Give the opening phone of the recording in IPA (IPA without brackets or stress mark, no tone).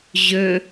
ʑ